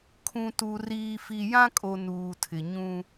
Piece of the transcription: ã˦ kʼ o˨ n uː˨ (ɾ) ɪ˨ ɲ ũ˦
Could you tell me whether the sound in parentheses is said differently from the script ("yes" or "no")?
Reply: yes